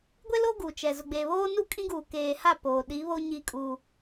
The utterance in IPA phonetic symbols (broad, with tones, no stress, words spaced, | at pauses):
ɡʷe˦lo˦ ɡu˨t͡ʃɛ˨ zʊ˨ɡ͡beː˨βoː˦nu˦ kʼĩ˦ɡuː˨ keː˨ha˦˨ poː˨ ɗi˨˦βo˦ ɲi˦kʼuː˦